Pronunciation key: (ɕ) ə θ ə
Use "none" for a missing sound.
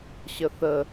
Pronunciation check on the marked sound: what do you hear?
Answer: ɕ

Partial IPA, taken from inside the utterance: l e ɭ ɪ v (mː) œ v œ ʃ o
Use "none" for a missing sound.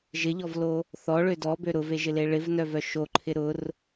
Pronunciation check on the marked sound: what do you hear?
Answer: n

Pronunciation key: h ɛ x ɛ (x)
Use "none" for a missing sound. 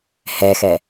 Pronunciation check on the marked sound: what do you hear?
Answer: none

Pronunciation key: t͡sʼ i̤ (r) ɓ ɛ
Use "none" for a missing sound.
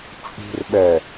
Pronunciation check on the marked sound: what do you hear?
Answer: r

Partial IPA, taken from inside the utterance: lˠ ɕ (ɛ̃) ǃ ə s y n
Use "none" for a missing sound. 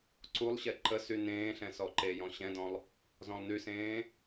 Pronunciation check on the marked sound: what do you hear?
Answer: ɛ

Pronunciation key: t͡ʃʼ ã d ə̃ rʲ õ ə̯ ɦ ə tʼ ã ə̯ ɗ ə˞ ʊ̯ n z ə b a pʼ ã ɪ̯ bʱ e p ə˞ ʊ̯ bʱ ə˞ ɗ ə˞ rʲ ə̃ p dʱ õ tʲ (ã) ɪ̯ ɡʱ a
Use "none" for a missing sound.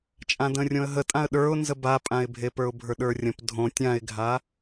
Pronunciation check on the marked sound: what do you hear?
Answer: ã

